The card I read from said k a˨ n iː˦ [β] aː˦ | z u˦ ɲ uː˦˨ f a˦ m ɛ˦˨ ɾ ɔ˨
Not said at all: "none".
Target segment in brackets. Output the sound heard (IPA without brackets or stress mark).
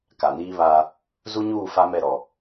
β